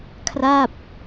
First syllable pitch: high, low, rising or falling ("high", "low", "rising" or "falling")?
falling